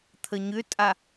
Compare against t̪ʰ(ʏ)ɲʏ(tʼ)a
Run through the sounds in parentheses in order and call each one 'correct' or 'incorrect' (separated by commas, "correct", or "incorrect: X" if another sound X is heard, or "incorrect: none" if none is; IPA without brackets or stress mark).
incorrect: ə, correct